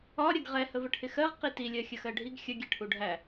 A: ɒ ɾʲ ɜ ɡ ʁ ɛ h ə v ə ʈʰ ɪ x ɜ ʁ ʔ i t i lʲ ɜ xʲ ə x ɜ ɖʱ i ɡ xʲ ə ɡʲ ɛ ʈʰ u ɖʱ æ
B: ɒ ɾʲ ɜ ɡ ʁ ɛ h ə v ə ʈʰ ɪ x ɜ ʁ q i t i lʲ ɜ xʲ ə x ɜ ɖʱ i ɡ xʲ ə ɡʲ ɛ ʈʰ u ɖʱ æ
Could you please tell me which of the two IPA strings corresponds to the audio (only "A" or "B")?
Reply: B